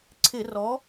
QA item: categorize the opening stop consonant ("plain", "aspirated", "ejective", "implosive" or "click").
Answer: click